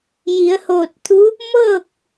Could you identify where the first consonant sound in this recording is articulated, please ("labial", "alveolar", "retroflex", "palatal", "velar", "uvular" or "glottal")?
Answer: palatal